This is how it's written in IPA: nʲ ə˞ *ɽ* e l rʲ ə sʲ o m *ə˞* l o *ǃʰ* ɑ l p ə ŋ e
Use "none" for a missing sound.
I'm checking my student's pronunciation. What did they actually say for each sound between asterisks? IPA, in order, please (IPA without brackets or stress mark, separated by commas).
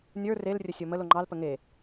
r, ə, ŋ͡ǃ